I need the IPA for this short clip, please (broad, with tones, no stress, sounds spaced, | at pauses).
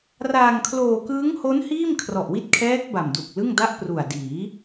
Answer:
r aː˧ ŋ kʰ l oː˧ k ɯː˦˥ ŋ h o˦˥ n h iː˥˩ m kʰ r ɔ˨˩ ʔ w i˦˥ t̚ kʰ ɛː˦˥ k̚ b a˨˩ m d u˨˩ k̚ l ɯ˥˩ ŋ d a˥˩ ʔ p r u˨˩ a̯ d iː˩˦